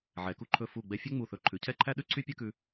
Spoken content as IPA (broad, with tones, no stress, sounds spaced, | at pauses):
ʕ ɛ˩˧ k u˧ ǃʰ ɵ˧˩ f u˧˩ ɡ͡b ɛ˧ fʲ œ˥ ŋ͡m u˧˩ θ ɵ˧˩ ǃʰ ʉ˩˧ cʰ ɛ˥˧ ǃʰ æ˥ ɗ ʉ˥ ǀʰ y˥ pʲ œ˥ k ʉ˧